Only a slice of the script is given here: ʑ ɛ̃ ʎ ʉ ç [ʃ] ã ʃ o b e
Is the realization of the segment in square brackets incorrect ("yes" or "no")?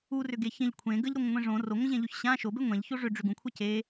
yes